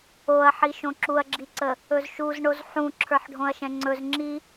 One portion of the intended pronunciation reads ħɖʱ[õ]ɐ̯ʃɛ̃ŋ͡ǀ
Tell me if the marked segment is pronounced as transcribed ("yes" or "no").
yes